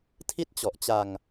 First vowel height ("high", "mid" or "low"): high